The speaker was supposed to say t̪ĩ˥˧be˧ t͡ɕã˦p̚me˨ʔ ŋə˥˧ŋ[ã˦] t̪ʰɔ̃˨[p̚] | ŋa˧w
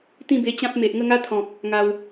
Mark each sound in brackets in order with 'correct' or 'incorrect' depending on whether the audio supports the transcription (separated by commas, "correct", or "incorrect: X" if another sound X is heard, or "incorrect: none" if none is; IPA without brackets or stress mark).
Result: incorrect: a˦, incorrect: k̚